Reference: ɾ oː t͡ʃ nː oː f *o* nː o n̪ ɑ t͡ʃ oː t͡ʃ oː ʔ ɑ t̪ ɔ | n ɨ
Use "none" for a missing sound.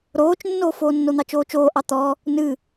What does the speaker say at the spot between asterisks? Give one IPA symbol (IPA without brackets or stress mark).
oː